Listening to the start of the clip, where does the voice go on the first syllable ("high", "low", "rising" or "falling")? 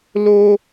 high